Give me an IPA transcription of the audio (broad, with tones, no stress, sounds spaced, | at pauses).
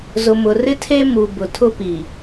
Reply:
z ʊ˨ m ʊ˨ r ɪ˦ tʰ e˦ m u˨ b ʊ˨ tʰ ʊ˦ p i˨